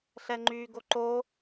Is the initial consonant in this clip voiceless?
yes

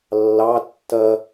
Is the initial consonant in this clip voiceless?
no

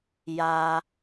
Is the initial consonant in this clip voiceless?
no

